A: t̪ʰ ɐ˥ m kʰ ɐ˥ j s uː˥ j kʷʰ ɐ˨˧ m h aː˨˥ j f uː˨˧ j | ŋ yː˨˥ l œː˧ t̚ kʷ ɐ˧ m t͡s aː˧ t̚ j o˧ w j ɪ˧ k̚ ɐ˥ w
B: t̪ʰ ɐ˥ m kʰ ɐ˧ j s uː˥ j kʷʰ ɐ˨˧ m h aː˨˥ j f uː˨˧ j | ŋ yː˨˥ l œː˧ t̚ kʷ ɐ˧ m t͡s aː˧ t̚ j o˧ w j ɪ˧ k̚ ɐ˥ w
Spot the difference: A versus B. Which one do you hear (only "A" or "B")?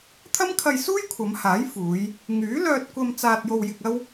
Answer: B